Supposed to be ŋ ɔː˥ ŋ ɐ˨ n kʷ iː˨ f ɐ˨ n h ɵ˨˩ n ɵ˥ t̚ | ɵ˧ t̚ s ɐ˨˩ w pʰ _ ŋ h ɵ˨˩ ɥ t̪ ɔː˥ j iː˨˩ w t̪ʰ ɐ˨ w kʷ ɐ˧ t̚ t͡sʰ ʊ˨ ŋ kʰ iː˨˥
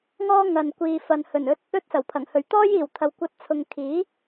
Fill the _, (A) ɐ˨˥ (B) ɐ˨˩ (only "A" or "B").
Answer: B